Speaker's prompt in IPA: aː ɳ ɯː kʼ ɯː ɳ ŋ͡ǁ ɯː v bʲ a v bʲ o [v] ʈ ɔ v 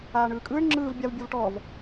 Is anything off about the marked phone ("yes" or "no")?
no